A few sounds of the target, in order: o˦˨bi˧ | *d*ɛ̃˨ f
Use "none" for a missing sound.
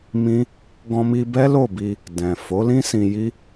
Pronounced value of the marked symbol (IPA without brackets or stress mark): d